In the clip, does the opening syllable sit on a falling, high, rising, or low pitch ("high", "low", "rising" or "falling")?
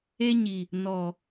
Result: high